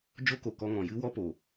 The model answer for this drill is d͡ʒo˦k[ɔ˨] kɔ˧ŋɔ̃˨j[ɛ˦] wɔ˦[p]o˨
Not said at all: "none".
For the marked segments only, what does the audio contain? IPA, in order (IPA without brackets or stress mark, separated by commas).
o˨, ɨ˦, p